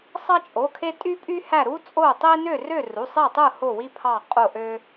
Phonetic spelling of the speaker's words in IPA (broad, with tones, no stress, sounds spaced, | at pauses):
sˤ ɑ˦ t͡ʃʼ o˩˧˩ kʰ e˦ tʼ y˦ pʼ y˦ h æ˦˨ ɾ u˦ t͡sʼ o˦˨ tˤ i˦ n ø˦˨ r ø˦˨ r u˩˧˩ sˤ e˦˨ tˤ ɯ˦˨ h o˦˨ w i˦ pʰ ɑ˦˨ qʼ o˦˨ ʔ ø˦